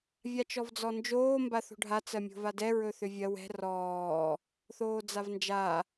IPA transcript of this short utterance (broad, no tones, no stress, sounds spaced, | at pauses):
vʲ a t͡ʃ ɔ v d͡z ɔ n d͡ʒ oː m b a θ o̤ ɖʱ a t͡s ɜ mʲ o̤ v a d ɛ ɹ ɵ θ ʏ vʲ ɜ w ɛ̤ r ɔː | θ oː d͡z a v n d͡ʒ a